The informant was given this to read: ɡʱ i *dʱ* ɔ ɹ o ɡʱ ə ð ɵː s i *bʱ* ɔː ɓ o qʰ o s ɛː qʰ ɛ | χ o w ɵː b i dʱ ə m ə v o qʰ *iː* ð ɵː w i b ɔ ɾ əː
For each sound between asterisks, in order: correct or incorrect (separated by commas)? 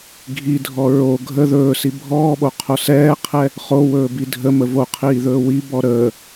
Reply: correct, correct, correct